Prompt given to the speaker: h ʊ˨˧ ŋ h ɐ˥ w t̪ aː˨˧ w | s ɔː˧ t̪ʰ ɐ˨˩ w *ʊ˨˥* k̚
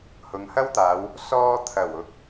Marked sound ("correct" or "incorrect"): correct